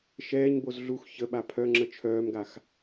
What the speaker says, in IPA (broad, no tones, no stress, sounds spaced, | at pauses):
ʃ ɛː ɲ b o z ɮ u x ç ə ɓ a pʰ œ ŋ͡ǁ ə t͡ʃʰ œː m ɡ a x